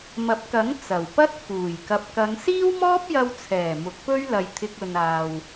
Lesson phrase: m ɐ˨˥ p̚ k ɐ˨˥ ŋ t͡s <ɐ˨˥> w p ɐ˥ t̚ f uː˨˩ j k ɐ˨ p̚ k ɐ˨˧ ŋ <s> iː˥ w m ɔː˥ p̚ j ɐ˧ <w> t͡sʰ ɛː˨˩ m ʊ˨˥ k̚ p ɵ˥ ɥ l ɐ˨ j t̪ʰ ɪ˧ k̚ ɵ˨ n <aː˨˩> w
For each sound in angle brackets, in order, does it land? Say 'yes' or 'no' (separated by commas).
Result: no, yes, yes, no